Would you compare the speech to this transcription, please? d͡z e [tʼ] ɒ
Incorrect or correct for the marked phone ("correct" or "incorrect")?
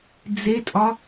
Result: correct